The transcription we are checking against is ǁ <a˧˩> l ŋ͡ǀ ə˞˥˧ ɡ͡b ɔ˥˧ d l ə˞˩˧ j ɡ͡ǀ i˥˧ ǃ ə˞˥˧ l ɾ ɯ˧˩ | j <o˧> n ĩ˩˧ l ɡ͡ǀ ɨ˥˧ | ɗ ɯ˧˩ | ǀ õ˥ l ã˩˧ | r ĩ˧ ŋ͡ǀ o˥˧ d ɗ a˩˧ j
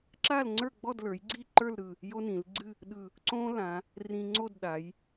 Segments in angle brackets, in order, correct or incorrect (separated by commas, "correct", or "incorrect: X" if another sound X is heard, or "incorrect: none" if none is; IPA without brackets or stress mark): incorrect: a˥˧, incorrect: o˥